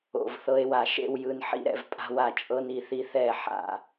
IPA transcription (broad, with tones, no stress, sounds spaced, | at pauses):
o̰˨ v θ ɤ˦ e̯ w a˨ ʃ ḛ˦ w j ɯ˨ n ħ ḭ˦ ɾ ɛ̰˨ v pʼ a̤˦ w a˨ t͡ʃʼ ɤ˦ n i˨ θ i˦ θ ɛ˦˨ ħ a̰˨